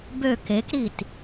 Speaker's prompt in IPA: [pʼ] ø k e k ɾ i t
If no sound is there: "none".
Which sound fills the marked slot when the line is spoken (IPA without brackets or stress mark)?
b